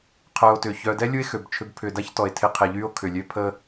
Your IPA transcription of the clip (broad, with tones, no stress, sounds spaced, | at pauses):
qʰ œ˨ o̯ t ʏː˩ ç œː˨ d ɛ˥ lʲ u˦ e̯ x ø˩ b t͡ʃʰ ʏ˦ b pʰ ʏː˨ d a˥ ç t ɔ˩ e̯ tʰ ɪ˦ qʰ e˨ ʎ y˦ o̯ kʰ ʏ˩ lʲ ø˦ pʰ əː˥